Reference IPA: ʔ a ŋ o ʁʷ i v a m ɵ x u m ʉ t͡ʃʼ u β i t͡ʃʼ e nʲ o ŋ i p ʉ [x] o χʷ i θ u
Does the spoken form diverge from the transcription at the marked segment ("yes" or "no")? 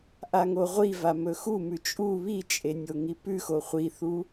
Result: no